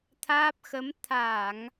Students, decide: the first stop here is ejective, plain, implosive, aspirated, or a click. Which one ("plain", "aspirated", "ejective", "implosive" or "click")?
aspirated